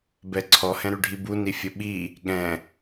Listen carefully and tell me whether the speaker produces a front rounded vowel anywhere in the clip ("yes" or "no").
yes